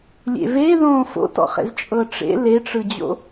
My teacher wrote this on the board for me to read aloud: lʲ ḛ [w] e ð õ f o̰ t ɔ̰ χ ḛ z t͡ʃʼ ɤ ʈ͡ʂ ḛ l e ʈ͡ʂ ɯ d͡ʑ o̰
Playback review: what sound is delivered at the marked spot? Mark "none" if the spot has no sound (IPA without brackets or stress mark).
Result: v